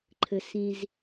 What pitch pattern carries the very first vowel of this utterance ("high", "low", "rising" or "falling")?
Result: low